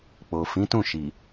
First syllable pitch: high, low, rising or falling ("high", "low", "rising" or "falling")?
low